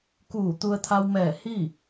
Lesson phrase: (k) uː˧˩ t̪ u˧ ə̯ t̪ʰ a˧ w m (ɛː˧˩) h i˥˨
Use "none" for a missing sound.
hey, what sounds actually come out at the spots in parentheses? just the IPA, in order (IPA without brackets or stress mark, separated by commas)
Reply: k, ɛː˧˩